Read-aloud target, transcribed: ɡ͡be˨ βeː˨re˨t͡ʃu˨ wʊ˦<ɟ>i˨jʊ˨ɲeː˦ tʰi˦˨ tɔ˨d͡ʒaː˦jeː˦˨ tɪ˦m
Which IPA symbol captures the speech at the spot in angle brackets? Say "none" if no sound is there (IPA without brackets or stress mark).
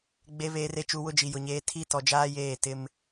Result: d͡ʒ